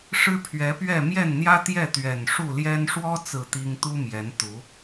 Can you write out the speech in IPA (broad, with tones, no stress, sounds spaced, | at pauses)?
ʂ ɻ̩˦ pʰ ɥ ɛ˨˦ p ɥ ɛ˥˨ m j ɛ˥˨ n n̪ j ä˦ t̪ j ɛ˥˨ t̪ ɥ ɛ˨˩ n ʂ u˥˨ l j ɛ˦ n ʂ w ɔ˦ t͡s ɹ̩˥˨ t̪ i˦ ŋ t̪ u˦ m j ɛ˨˦ n t̪ u˨˦